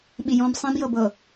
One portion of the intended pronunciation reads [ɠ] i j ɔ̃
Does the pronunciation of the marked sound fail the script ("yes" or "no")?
yes